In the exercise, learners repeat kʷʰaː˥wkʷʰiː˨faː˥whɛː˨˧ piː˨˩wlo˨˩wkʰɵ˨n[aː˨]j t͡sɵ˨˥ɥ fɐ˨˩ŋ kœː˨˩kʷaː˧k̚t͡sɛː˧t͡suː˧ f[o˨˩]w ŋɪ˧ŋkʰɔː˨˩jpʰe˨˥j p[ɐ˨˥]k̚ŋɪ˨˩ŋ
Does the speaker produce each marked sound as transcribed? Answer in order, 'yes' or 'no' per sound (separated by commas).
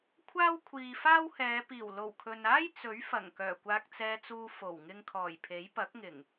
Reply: no, yes, yes